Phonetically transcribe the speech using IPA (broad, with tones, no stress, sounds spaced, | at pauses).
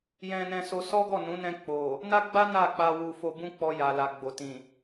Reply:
j ɛ̃˧ n ɛ̃˧ s o˧ s ɔ˦ ɡ ɔ˦˨ n ũ˨˦ n ɛ̃˧ k͡p o˨ | n a˦ ɡ͡b a˦ n a˦˨ k͡p a˧ w u˧ f o˧ b ũ˦ k͡p ɔ˧ j a˨ l a˨ ɡ͡b o˨ t ĩ˨